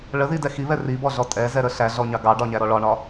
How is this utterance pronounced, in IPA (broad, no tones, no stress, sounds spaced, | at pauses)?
ɭ ə ð i d ɛ x i β ɛ r i b ɔ ɮ ɔ tʼ ɛ z ɛ ɾ ə ɬ æ ɮ ɔ ɲ ɑ ɡ ɑ ɖ ɒ ɲ æ ɾ ɔ ɭ ɒ ɳ ɒ